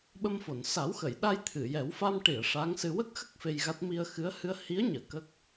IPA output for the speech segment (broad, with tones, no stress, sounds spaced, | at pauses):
ɓ ə˧ m f o˨˩˨ n s a˨˩˦ w x ə˨˩˨ j ɗ a˧ j t̪ʰ ɨ˨˩˨ j ɛ˨˩˦ w f a˧ m ʈ i˨˩˨ ə̯ ʂ a˧˥ ŋ s ɨ˧ w ə˦˥ k̚ x ə˦˥ k̚ f e˧ j ɣ a˦˥ t̚ m i˧ ə̯ x ɨ˧˥ ə̯ h ɨ˧ ə̯ h i˧˥ ə̯ ɲ əː˨˩˨ k ə˦˥ k̚